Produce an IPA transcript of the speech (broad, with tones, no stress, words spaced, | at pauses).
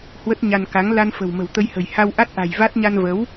hwə˦˥t̚ɲa˧n ka˨˦ŋ la˧nfə̤˨˩w mə̤˨˩wt̪ə˧jhə̤˨˩j ha˧wʔa˦˥t̚ʔa̤˨˩j va˦˥t̚ ɲa˧nvə˨˦w